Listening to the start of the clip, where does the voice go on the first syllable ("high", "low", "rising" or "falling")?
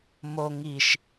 low